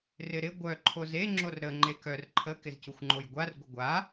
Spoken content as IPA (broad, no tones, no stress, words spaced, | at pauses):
rɪɾɪ ɡʷœ ǃʰoze ŋ͡ǁorɾə ŋ͡ǃekœr ǃʰə kɪzcuxʷŋ͡ǃojɡʷar ɡʷɪɡʷa